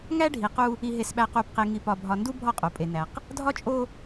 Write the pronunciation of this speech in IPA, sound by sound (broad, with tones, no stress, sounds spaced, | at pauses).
ŋ æ˦ ɖʱ i˨ q u˦ | i˨ ɦ e˨ s ɓ æ˨ q u˨ p q e˨ ŋ i˨ p ɒ˨ bʱ ɒ˨ n d u˦ bʱ ɒ˦˨ qʼ o˨ pʼ e˨ n æ˨ q | dʱ ɒ˦ t͡ʃʼ o˦